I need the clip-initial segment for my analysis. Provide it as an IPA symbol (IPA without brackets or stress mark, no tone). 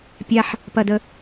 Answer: pʲ